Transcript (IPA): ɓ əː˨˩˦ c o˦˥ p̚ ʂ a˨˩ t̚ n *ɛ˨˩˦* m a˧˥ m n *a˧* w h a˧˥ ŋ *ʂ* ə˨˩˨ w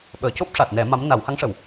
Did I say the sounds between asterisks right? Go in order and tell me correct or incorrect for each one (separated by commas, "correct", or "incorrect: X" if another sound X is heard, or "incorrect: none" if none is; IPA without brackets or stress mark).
correct, incorrect: a˨˩˦, correct